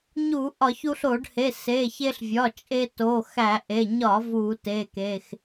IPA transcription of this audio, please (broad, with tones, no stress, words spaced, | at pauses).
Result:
ɲu˧˩˧ ʔɒ˧˩˧çu˧ɬo˧˩˧ɖhe˩˧˩ se˩˧˩ çe˧ɬvʲɒ˩˧˩t͡ʃʼe˧ to˩˧˩xæ˧˩˧ʔe˩˧˩ ɲɒ˧˩˧ vu˧˩˧te˩˧˩ke˩˧˩x